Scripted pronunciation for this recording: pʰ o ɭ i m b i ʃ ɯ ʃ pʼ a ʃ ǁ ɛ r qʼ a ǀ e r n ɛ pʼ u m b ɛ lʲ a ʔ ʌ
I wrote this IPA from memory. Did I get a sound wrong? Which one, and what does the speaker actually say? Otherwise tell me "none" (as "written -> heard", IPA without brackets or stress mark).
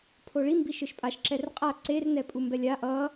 none